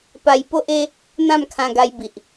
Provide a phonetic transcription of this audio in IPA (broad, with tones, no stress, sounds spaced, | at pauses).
p a˧ j p o˦ ʔ e˦ | n̪ ã˥˧ m kʰ ã˧ ɡ a˧ j b i˨ ʔ